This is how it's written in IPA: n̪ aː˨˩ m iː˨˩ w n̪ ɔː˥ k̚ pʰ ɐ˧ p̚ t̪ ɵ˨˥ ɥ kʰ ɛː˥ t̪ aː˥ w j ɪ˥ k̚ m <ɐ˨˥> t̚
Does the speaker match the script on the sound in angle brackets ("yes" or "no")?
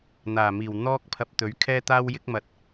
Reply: no